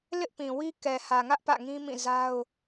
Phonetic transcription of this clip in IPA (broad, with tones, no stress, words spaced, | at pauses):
lɪ˦ʔpĩ˨wi˦ kɛ˨hä˨ŋä˦ʔ pä̰˦˨ŋĩ˦mĩ˦˨za˦ʊ̯